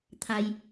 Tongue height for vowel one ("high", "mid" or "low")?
low